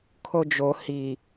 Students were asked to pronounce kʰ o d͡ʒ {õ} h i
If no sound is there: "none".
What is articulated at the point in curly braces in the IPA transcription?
o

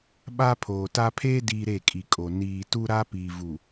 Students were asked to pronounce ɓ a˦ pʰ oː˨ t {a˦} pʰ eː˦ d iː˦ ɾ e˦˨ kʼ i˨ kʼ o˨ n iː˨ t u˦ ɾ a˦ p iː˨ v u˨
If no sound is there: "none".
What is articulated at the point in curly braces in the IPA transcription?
a˦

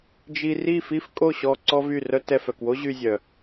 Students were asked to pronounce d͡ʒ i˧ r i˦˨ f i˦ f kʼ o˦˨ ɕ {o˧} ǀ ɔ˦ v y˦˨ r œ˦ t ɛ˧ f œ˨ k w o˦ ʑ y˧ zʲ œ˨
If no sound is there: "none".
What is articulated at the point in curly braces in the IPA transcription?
ɔ˧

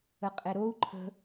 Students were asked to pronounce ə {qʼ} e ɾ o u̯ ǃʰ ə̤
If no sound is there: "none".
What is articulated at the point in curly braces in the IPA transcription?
qʼ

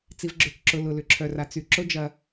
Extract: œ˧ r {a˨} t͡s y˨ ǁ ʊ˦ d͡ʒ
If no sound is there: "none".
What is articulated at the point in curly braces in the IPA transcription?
a˧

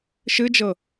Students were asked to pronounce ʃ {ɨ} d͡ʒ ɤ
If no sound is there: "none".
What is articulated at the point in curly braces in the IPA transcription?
ɨ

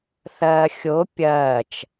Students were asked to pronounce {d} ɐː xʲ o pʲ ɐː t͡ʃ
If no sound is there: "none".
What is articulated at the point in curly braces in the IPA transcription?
θ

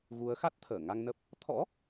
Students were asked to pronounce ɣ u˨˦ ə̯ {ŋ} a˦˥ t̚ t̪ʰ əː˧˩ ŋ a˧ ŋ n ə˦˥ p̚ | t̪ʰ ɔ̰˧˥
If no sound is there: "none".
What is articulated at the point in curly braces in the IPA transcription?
x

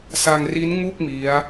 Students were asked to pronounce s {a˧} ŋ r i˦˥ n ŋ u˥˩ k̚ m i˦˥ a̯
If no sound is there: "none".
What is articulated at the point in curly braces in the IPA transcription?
a˧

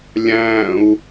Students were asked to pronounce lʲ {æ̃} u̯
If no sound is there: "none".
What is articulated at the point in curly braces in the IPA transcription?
æ̃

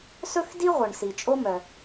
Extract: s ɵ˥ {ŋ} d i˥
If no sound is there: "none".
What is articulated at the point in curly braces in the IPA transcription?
x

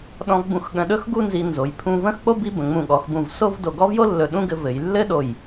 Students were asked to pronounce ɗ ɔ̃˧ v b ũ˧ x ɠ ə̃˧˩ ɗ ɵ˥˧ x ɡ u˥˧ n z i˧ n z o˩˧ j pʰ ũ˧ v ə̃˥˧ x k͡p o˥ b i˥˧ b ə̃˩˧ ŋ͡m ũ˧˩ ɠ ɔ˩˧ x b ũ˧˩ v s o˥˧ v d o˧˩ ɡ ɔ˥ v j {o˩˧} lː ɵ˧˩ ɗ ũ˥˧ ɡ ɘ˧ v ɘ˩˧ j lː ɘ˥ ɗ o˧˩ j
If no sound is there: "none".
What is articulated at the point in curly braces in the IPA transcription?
o˥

